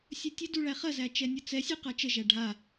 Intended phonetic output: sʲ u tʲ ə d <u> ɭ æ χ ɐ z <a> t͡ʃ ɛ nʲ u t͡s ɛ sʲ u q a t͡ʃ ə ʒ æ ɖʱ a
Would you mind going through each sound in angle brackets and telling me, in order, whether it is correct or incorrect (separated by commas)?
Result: correct, incorrect